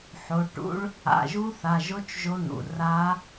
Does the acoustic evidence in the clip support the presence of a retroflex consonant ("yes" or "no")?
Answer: yes